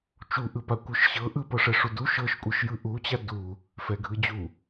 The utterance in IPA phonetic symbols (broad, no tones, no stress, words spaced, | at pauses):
t͡ʃuʔɯpa kʷɯʃɕɤ ʔɯpɤʂɛ ʂudu ʃɤʃkʷʼɯʃjɯ ʔut͡ɕa du | fɛɡʱɯd͡ʑu